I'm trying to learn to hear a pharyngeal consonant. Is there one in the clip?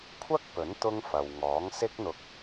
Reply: no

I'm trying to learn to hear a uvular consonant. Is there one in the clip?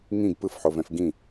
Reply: no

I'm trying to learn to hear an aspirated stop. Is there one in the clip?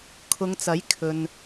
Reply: yes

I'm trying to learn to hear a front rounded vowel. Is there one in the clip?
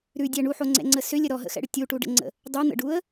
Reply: yes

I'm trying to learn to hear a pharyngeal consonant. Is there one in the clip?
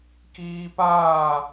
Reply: no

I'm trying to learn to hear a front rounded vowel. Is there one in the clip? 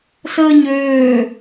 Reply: yes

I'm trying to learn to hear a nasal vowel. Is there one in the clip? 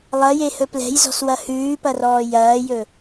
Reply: no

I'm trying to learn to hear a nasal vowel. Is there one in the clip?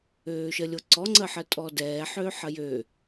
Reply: no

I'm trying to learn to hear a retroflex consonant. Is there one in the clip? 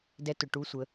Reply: yes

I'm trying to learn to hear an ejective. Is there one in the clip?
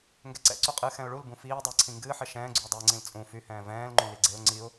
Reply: yes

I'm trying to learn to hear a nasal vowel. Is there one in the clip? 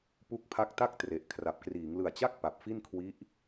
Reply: no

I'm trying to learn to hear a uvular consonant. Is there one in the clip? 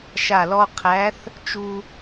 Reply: yes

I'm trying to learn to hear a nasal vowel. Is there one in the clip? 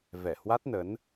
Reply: no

